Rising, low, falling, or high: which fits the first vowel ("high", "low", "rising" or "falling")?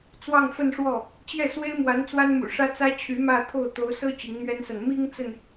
falling